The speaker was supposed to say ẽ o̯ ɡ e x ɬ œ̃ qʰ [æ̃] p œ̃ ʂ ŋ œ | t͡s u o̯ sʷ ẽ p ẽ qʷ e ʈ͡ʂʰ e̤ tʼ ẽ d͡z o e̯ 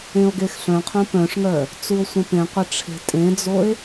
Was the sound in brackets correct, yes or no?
no